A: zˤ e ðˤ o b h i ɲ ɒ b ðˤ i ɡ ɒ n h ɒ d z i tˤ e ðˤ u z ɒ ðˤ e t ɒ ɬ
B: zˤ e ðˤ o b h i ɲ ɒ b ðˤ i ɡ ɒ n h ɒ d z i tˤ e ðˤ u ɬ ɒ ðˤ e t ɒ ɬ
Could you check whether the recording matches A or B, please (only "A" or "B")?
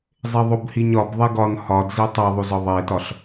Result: A